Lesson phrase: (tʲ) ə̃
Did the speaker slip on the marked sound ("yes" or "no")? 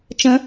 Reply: yes